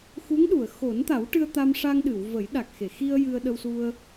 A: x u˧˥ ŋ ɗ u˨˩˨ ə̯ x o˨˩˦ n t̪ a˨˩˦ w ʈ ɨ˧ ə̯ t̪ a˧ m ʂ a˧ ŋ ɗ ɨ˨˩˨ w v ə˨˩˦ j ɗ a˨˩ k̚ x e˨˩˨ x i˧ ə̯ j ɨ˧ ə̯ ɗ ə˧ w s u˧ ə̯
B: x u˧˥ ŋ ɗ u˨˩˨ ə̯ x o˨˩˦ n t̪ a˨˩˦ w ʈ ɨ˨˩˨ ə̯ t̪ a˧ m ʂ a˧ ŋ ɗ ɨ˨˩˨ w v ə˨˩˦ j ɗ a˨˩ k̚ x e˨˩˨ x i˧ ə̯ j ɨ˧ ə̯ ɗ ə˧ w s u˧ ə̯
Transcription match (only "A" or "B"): A